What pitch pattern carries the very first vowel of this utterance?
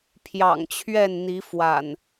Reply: low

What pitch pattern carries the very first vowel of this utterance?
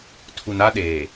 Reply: low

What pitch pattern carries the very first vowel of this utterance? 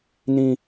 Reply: high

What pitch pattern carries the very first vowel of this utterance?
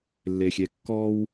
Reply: low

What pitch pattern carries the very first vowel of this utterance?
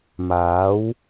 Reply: rising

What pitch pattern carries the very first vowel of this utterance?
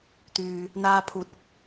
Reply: low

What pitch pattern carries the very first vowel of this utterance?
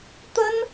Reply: high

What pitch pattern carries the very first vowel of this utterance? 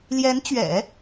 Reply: rising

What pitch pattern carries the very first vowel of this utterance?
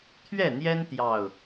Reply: falling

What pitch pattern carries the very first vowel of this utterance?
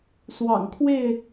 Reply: low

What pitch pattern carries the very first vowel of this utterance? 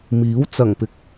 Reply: rising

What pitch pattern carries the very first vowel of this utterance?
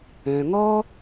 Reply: low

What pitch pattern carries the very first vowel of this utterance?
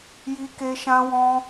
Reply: high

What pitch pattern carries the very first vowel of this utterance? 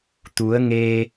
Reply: rising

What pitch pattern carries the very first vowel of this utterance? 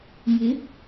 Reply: rising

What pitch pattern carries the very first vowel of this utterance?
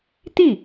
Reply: falling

